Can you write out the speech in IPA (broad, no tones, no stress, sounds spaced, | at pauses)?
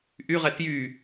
ʔ y ʁ ɛ t j y